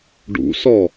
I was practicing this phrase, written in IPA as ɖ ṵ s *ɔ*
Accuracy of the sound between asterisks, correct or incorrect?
correct